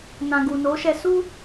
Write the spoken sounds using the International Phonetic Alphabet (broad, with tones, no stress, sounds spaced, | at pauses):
n ã˨ ɡ u˨ n o˨˦ ʃ ɛ˧ s u˧